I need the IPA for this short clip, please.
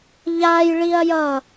ʎ a j ɭ i ɐ̯ j ʌ

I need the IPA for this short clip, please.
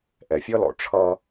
ʔ ɛ˨ fʲ ʌ˦ l ɔ̰˨ ʈ͡ʂʰ ʌ˦

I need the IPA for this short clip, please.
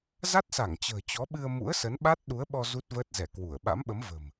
z a˦˥ t̚ s a˧˩ ŋ t͡ɕ ə̤ː˨˩ t͡ɕ ɔ˨˦ ɓ ɨ˧ ə̯ m ṵ˧˥ ə̯ s ə˨˦ n ɓ a˦˥ t̚ ɗ u˨˦ ə̯ ɓ ɔ˧ z u˦˥ t̚ v əː˦˥ t̚ z ɛ˧˩ k w u˧˩ ə̯ ɓ a̰˧˥ m ɓ ə˨˦ m v ə̤˨˩ m

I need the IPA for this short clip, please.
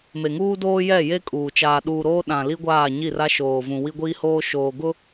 m e˨ ŋ uː˦ d oː˦ j ɛ˦˨ j e˦ kʼ uː˨ t͡ʃ aː˨ ɗ uː˨ ɾ oː˦ ɗ ã˨ l i˦ ɡʷ aː˦˨ ɲ i˦˨ r a˦ ʃ oː˨ v ũ˨ w i˦ ɡʷ iː˦ h oː˦ ʃ oː˨ ɡ ʊ˦

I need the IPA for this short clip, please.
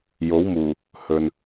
j o˨˥ w m uː˨˩ | h ɵ˨ n

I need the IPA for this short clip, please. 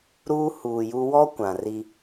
ɾ uː˦ h uː˨ j uː˦ w ɔ˦ kʷ ã˨ r i˦

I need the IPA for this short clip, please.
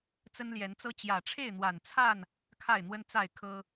t͡s ə˦ n l j ɛ˨˦ n t͡s ɤ˦ t͡ɕ j ä˨˩ ʈ͡ʂʰ e˥˨ ɪ̯ n̪ w a˨˩ n t͡sʰ a˥˨ n | kʰ a˥˨ ɪ̯ n̪ w ə˦ n t͡s a˥˨ ɪ̯ kʰ ɤ˦

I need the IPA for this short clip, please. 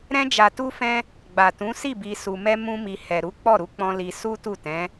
ɾ ɛ̃˧ d͡ʒ a˨ t u˧ f ɛ̃˧ | ɡ͡b a˨ t ũ˨˦ s i˦˨ b i˨ s u˨ m ɛ˧ m ũ˧ m i˨ h ɛ˨ ɾ u˨˦ k͡p ɔ˦˨ ɾ u˨˦ k͡p ɔ̃˧ l i˧ s u˦ t u˦˨ t ɛ̃˨˦

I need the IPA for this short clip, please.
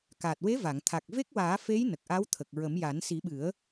k a˨˩ t̚ w e˧˥ v a˨˩˨ ŋ t̪ʰ a˨˩ k̚ v e˦˥ k̚ w aː˨˩˦ f e˧˥ j n ə˨˩ k̚ ʔ a˧˥ w t̪ʰ ə˨˩ k̚ ɹ ə˨˩˦ m j a˨˩˦ n s i˨˩˦ ɓ ɨ˨˩˦ ə̯

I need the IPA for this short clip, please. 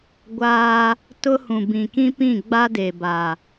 ɡʷ aː˦ | t ʊ˦ h ũ˨ b ĩ˨ k ĩ˦ p ĩ˦˨ ɡ͡b a˦ d e˨ b a˨

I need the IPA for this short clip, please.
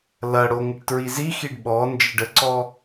l ɐ ɽ o ŋ ɪ ʈ t ɹ i z i x i ɖ ɓ ɔ n d͡ʒ ɪ ɖ ə ǀ ɔ

